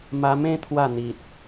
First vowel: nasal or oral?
oral